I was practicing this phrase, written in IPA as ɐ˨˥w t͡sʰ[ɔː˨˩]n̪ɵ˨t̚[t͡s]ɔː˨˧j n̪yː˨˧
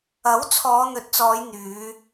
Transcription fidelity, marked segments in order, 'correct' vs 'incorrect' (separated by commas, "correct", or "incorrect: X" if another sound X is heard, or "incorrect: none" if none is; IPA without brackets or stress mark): incorrect: ɔː˨˧, correct